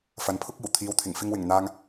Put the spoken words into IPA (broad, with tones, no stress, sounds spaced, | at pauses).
f ɐ˨ n pʰ ʊ˥ k̚ iː˨˩ w t̪ʰ iː˨ w t̪ʰ ɪ˨˩ ŋ f ɪ˧ ŋ w ɪ˨˩ ŋ n̪ aː˧ ŋ